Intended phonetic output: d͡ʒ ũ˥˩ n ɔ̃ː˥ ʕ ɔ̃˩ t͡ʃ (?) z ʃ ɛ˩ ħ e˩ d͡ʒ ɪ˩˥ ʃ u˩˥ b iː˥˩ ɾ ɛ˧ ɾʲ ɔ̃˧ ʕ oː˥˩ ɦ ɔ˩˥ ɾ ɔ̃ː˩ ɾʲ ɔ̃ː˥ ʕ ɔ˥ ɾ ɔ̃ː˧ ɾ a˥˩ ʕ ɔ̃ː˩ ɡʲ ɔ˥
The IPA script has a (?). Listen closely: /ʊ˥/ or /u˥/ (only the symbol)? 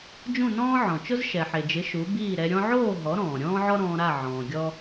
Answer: ʊ˥